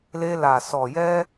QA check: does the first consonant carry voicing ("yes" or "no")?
yes